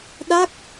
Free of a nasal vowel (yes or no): yes